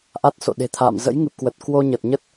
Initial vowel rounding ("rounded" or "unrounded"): unrounded